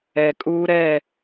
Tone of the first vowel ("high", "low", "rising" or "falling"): high